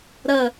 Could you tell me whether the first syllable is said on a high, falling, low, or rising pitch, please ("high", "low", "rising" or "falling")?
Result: falling